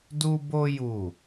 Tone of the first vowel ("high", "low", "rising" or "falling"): high